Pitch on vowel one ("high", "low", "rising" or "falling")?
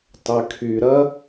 low